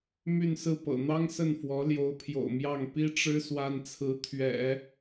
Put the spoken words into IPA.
m y˥˧ n s ɹ̩˥˩ p ɤ̰˨˩ n̪ ɑ˥ ŋ s ə˥˩ n f w ɔ˧˥ l j o˧˥ ʊ̯ pʰ j o̰˨˩ ʊ̯ m j ɑ˥˩ ŋ p i˥ ʈ͡ʂ ɻ̩˥ s w a˥ n t͡sʰ ɹ̩˧˥ t̪ʰ ɥ ɛ̰˨˩˦

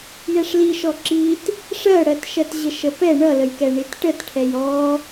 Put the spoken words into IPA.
j ɛ ʂ l i ʃ ɔ ǁ i t | ʂ ɜ ɽ ɜ t ʃ ɜ t ʑ ə ʃ ə p ɛ ɳ ʌ l ə j k ɛ ɳ i t ʈ ə t ʈʰ ɛ j ɔ

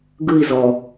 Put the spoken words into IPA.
ɡ ɯ i̯ z ɔ

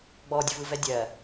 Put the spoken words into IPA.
ɡ͡b ɔ dʲ ʊ v ɯ v ɛ dʲ ɜ

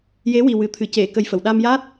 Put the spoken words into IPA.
j e˧˥ w i˨˩ w ɨ˨˩˨ t̪ʰ ɨ˨˩˨ c e˨˩˨ k ə˧ j f ə˨˩˨ w ɗ a˧ m j a˦˥ t̚

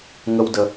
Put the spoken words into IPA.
ŋ ə˦ w d ə˧

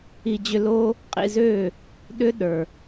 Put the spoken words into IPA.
i˧ d͡ʑ ʏ˧ l o˦ | qʼ ḭ˧ z ø˦˨ | ɗ ʏ˦ ɗ ə˞˨

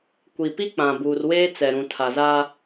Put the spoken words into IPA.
kʷ i˨ p i˦ k͡p ã˨ b uː˨ r w eː˦ t͡s ɛ˨ ɾ ũ˨ tʰ a˨ z a˦

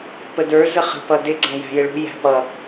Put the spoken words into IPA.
p ə d ə˞ z ə χ ə̤ p ʌ d ɪ ɡ͡ǀ æ̃ j æ̤ j ɪ ɭ ṳ j æ̤ p ʌ

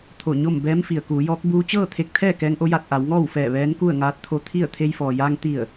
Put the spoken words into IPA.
t̪ʰ o˧˩ ɲ o˥˨ m b ɛː˧˥ m f i˩ ə̯ k uː˩˧ j ɔː˧˥ k̚ b uː˧ t͡ɕ ɤː˥˨ t̪ʰ e˧ k̚ t̪ʰ ɛː˥˨ k ɛː˧˥ ŋ ʔ o˧˥ j a˧ t̚ ʔ a˩˧ w ŋ ɔː˥˨ w f ɛː˧˩ ʋ ɛː˧˥ n k u˥˨ ə̯ ŋ aː˧ t̚ t̪ʰ o˧ t̪ʰ i˥˨ ə̯ t̪ʰ e˧ j f ɔː˩ j aː˧ ŋ t̪ i˧˩ ə̯

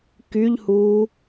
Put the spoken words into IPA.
k y ʎ h uː

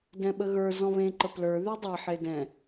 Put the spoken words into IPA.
d ɛ̃ ɓ ə ɣ ə˞ z ɔ̃ β ẽ ǃ ə p l ə˞ ð ʉ dˤ a ħ e d ɛ̃

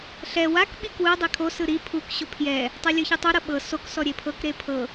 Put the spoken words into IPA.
ɬ ɛ w a k ɓ i k w ɯ dˤ e kʰ o s ɯ ɾ i pʰ u k ɕ o pʰ j ɛ | tˤ ɤ lʲ ɯ ç ɯ tˤ o ɾ ɤ ɓ ɤ s o k s ɔ ɾʲ e pʰ ɤ k ɾ e pʰ ɤ

